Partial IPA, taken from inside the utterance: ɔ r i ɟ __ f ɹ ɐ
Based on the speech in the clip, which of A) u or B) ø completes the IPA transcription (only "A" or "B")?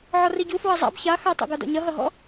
A